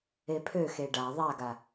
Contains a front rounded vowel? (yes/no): yes